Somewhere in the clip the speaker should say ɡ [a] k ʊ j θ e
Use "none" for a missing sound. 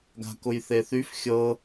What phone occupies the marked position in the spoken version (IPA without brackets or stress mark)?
a̤